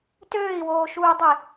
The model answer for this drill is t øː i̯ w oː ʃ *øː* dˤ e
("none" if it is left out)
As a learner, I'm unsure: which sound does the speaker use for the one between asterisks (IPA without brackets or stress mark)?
uː